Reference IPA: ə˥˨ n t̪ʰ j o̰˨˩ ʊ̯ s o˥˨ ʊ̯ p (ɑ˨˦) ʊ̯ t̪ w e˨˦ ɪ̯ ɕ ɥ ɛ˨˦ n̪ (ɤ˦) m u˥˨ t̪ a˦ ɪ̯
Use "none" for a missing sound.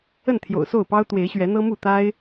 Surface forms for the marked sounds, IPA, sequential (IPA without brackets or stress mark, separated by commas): ɑ˦, ɤ˦